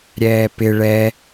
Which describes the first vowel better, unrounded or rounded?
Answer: unrounded